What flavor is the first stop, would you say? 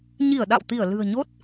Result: implosive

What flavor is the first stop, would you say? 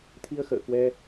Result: aspirated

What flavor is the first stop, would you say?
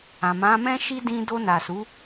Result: plain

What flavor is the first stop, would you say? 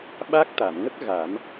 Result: implosive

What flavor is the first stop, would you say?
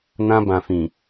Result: plain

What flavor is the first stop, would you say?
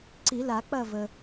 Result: click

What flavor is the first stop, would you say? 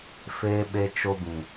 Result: implosive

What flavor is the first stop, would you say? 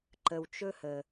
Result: click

